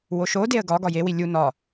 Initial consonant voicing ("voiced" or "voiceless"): voiced